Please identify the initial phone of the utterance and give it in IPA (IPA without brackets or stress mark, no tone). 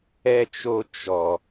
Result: ɛ